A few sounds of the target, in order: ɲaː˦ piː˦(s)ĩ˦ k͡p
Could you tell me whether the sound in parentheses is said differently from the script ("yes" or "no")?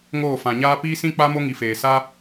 no